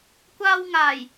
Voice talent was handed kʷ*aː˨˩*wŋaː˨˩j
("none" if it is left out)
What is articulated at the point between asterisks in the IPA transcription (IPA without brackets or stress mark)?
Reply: aː˧